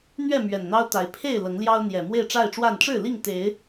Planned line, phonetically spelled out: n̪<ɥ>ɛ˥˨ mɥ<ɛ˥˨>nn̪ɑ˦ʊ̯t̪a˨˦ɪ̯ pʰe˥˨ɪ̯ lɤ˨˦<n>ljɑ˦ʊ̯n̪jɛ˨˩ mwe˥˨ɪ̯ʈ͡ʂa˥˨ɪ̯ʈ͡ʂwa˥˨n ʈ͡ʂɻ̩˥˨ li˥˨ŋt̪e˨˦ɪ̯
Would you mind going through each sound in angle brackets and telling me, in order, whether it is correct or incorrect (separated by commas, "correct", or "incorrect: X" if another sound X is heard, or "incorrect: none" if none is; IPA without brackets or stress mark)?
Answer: correct, incorrect: ɛ˨˩, incorrect: ŋ